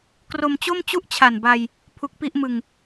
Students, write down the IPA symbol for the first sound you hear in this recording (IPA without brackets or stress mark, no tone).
k